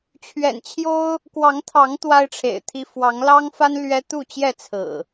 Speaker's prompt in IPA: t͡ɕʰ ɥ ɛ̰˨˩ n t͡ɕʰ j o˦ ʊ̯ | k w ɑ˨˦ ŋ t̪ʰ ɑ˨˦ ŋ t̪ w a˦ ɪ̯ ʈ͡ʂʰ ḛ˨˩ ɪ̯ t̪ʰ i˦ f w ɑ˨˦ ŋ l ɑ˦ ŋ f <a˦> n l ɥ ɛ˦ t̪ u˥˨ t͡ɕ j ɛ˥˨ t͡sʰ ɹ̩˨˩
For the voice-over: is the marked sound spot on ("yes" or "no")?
yes